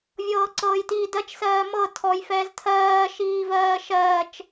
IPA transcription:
vʲ ɤː ǀ ɤː j t iː d ɜ t͡ʃ s ɜː m ɤ tʰ ɔ j f ɛː z tʰ ɜː ʃ iː v ɜː ʃ ɜː t͡ʃ

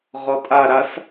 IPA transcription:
ʁ ɔ tʼ a ɾ a s

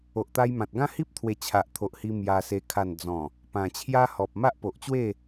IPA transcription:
o˨ ʔ t̪ a˧ j m ã˨ t̚ ɡ ã˦ h i˦ p̚ t̪ʰ w e˨˩ t͡ɕʰ a˨ ʔ t̪ʰ o˨ ʔ h i˧ m j a˧ s e˧ kʰ a˨˩ n d͡z ɔ̃˨˩ | p ã˨˩ t͡ɕʰ j a˦ h ɔ˨ p̚ m a˦ ʔ p o˨ ʔ t͡ɕ w e˥˧

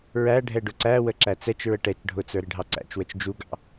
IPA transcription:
ɹ æ ɖʱ ɛ ɖ ʊ ǀ æ w ə ǁ æ t͡s ɛ t͡ʃ ɹ ə ʈ ɛ t͡ʃ ɖʱ ʊ t͡s ə˞ ɾ ɪ ɖʱ ɑ ǀ æ̰ t͡ʃ w ə t͡ʃ d͡ʒ u ɡ ɑ̰

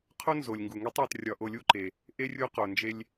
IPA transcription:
qʰ o˥ n z o˩ lʲ ŋ ɡ u˩ ŋ i˧˥ tˤ æ˩˧ t rʲ ɒ˧ ʔ o˧ lʲ u˥ ǃ e˩ | ʔ e˥ rʲ u˧˥ q o˩ n d͡ʒ e˧ lʲ

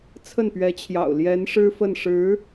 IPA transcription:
t͡sʰ ə˥˩ n p ɥ ɛ˧˥ t͡ɕʰ j ɑ̰˨˩ ʊ̯ l j ɛ˧˥ n ʂ ɻ̩˥ f ə˥˩ n ʂ ɻ̩˧˥

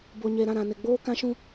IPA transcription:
b o˨ ɲ e˨ ɾ ã˦˨ ɾ ã˨ n ɪ˨ ɡ͡b oː˦ k ã˦ ʃ ũ˦

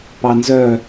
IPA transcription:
p ɑ n z œ

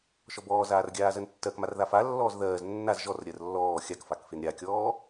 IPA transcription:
ʃ ɔ b ɔː z aː r ɡʲ aː z ɜ n tː ɜ k m a r ð a f a lː ɔː z ð ɜː z nː a z ʒ ɔ r ɾʲ ɜ r lː ɔː xʲ a k f a k f e n ɾʲ a kʲ ɔː

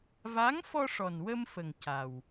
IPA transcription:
v a˧˥ ŋ f ɔ˧ ʂ ɔ˨˩ n w ə˧ m f ə˨˩ ŋ c a˨˩ w

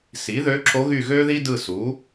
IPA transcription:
s i˩˥ ð ø˧˥ ǁ o˧˥ ɣ y˦˨ ɣ ø˥ ð i˥ d ɯ˦˨ s u˩˥

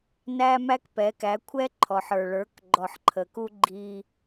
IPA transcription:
n æ˦ m æ˦ k p ɛ˨˦ k æ˨˦ kʷʰ ɛ˦ ǃʰ ɔ˨ ħ ə˞˨ ɭ ə˞˨˦ k ɡ͡ǃ ɔ˨ ħ ǃʰ ə˨ k u˦ ɡ͡ǃ i˦

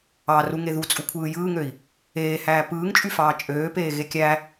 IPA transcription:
ɑ r u ŋ e ð u t͡sʼ u kʷʰ ɯː j ɯː ŋ ø i̯ | eː h æː p ɯː ŋ t͡ʃʼ y f ɑː t͡ʃʼ øː p eː ɣ e kʲ æ

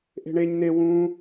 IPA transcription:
ʔ e̤ ɳ e ɲ n e w ũ

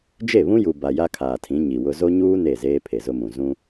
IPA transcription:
d͡ʒ e˦˨ β ũ˦ j u˨ b a˨ j a˦ kʰ aː˨ tʰ ĩ˨˦ ɲ i˨ w ʊ˦ z o˦ ɲ uː˦ n e˦˨ z eː˦ pʰ e˨ z ʊ˦ m ũ˨ z ũ˦

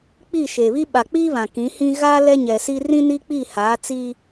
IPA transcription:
k͡p iː˦˨ ʃ eː˨ β i˦ ɓ a˨ k͡p iː˦ β ã˨ k ĩ˨˦ h ĩ˦ ɣ a˦ l ɛ˦ ɲ ɛ˨ s iː˦ r ĩ˦ n i˦ k͡p i˦˨ h aː˨˦ t͡s i˦

